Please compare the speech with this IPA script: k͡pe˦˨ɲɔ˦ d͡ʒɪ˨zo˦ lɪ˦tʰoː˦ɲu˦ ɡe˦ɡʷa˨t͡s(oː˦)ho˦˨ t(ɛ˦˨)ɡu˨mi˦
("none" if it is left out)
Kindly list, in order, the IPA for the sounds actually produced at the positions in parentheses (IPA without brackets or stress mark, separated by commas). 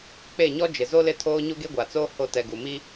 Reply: oː˦, ɛ˨